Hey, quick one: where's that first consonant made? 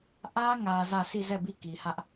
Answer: throat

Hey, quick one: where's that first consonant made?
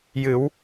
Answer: palate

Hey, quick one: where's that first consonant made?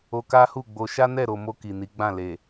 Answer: velum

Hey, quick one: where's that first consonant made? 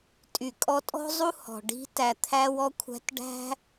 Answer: tongue tip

